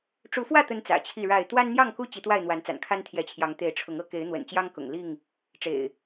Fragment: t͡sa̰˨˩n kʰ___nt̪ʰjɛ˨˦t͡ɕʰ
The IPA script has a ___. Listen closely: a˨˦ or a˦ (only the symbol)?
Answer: a˦